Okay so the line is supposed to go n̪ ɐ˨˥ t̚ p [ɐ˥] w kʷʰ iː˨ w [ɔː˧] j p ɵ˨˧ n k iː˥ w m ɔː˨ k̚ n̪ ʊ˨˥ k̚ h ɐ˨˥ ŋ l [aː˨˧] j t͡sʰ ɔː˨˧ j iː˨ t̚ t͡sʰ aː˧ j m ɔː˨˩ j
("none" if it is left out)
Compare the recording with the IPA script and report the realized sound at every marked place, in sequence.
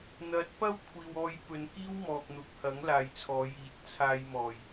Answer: ɐ˥, ɔː˧, aː˨

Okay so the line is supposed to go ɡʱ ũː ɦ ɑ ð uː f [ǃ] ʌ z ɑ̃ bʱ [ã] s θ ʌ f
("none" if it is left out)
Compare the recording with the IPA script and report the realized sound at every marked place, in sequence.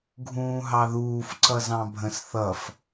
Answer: ǀ, ə̃

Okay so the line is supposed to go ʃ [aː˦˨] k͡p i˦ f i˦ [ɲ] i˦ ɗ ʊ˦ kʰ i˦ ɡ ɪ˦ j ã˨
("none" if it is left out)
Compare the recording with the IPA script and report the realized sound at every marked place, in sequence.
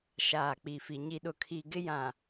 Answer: aː˦˨, ɲ

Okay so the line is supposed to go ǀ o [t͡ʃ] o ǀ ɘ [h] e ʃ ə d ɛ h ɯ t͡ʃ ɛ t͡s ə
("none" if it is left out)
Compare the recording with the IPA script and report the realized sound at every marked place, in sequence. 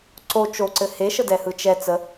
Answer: t͡ʃ, h

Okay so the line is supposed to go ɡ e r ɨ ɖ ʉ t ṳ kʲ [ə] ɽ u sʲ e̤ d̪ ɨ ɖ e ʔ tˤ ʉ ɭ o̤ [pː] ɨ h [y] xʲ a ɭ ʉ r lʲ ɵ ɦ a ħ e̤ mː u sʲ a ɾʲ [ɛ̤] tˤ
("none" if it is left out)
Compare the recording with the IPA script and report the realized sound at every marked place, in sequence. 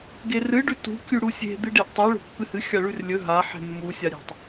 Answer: ʉ, pː, ɨ, e̤

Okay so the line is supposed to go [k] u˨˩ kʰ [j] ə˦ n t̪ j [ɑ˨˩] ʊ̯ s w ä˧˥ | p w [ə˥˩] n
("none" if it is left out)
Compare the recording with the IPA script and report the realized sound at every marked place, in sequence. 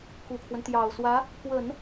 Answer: k, w, ɑ˨˩, ə˨˩˦

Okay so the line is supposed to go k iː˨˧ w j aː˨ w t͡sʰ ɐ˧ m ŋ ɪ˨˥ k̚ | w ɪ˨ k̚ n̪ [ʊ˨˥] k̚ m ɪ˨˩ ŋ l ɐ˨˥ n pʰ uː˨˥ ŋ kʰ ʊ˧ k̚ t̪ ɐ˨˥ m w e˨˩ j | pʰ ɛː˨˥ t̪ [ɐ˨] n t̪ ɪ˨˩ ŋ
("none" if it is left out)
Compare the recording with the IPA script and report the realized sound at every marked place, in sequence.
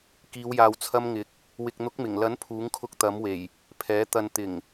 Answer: ʊ˨˥, ɐ˨

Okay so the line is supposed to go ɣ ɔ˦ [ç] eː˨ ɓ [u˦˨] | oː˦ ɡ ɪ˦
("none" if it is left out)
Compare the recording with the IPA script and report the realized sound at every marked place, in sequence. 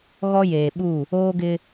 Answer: j, u˦˨

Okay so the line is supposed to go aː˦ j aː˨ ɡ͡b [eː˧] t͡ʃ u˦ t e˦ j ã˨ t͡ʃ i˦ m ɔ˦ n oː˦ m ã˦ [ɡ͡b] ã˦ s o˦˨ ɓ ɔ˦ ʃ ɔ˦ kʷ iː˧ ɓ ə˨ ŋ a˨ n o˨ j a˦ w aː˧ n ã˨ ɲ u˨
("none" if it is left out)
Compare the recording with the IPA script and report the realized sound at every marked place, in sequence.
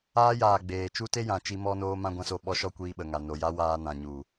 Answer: eː˨, ɡʷ

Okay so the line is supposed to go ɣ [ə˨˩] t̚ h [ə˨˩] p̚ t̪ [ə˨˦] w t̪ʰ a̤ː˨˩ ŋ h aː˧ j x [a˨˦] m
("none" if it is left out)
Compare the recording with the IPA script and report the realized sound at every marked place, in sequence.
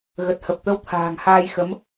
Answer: ə˨˩, ə˨˩, ə˧, ə˨˦

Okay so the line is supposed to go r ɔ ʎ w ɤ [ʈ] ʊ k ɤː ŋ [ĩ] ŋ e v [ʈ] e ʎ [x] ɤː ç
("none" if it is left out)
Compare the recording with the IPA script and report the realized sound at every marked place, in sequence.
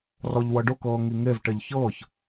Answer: ɖ, i, ʈ, ç

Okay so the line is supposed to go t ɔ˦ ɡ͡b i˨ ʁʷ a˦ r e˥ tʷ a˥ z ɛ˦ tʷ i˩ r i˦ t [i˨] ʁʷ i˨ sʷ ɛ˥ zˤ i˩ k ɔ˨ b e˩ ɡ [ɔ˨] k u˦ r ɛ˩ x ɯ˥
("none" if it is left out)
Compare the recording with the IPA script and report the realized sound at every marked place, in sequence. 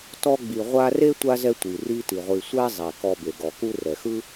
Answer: i˩, ɔ˩

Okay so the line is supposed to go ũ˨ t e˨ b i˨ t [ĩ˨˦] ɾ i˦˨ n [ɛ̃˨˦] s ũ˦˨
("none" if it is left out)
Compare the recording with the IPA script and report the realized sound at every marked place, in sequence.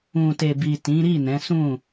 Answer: ĩ˨˦, ɛ̃˨˦

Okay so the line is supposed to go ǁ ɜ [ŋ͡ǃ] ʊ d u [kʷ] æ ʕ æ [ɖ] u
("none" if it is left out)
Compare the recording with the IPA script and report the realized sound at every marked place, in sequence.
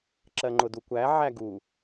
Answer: ŋ͡ǃ, kʷ, ɡ

